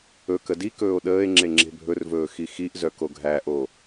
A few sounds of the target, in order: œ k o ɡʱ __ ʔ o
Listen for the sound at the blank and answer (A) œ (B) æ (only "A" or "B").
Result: B